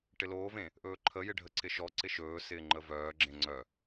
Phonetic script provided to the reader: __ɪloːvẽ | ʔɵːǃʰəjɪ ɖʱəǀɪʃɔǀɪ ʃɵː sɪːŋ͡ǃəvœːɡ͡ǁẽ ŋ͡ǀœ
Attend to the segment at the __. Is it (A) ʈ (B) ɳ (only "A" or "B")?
A